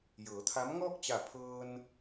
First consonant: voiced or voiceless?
voiced